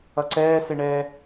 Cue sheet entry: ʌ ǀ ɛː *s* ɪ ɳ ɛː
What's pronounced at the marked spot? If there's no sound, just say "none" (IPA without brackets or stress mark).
s